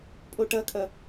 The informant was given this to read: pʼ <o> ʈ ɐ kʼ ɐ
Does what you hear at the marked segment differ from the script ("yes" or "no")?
no